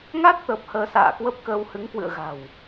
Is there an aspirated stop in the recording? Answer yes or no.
no